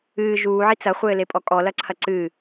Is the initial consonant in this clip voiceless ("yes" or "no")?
no